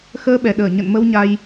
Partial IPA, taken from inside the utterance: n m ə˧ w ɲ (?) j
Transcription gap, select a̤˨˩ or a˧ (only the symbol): a˧